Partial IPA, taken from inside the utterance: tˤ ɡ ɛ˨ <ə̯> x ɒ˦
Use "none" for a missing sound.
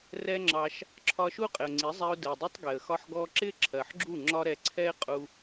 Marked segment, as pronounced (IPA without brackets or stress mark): ə̯